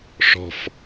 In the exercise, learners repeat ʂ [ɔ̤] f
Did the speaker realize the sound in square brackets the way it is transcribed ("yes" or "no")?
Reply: yes